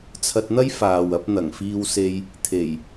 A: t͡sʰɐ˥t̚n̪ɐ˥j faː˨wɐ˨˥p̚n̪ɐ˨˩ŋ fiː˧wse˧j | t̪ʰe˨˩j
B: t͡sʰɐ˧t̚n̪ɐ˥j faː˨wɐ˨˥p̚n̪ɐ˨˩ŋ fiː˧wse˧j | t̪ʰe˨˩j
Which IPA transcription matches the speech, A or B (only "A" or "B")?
B